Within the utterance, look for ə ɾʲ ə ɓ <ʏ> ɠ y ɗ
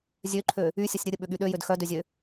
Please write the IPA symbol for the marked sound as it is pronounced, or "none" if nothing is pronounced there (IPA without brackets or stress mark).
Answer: ʏ